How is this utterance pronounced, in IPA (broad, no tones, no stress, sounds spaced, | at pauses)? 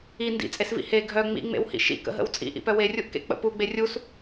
i n d ḭ t͡sʼ e s v ḭ h e ɡʱ œ ŋ͡m ḭ ŋ͡m ḛ w h ḭ ʃ ḭ k ə̰ ɦ ə̰ w t͡sʼ ḭ ʔ ḭ p œ w e rʲ u ʔ k ḛ k͡p ə̰ p u ɡ͡b e rʲ u s